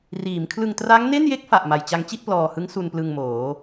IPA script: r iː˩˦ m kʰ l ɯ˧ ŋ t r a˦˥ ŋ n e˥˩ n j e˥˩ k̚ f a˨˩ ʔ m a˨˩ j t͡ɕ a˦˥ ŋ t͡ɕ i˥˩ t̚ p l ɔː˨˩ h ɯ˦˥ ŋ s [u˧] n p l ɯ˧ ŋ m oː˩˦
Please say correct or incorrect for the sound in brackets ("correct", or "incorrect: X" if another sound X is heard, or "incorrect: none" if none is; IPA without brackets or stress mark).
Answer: correct